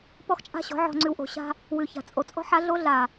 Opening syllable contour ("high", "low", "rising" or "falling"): high